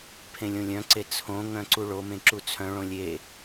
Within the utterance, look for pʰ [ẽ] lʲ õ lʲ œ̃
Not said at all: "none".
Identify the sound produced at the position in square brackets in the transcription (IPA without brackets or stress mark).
ẽ